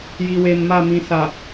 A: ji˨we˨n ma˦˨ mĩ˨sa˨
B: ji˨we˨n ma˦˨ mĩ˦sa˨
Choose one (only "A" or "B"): A